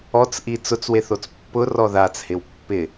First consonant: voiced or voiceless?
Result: voiceless